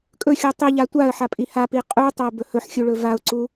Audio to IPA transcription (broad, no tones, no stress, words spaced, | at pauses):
kʼɵxʲu tˤiʎa tʷaə̯ ħapʼihapi qʼu tˤɵʊ̯bɵhɵħxʲu ɭɵvaʊ̯ǀu